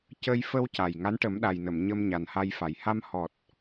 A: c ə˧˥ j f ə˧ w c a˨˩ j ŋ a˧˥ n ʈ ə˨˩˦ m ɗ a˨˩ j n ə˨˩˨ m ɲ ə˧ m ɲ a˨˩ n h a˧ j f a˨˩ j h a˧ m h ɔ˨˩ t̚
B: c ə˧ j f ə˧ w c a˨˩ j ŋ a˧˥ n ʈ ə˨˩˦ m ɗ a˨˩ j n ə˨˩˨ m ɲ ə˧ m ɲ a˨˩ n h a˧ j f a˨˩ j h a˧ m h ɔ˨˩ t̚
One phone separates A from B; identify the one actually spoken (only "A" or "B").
B